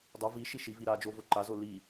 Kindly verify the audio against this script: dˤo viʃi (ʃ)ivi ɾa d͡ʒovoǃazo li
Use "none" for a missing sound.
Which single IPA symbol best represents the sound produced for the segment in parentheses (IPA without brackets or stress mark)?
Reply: ʃ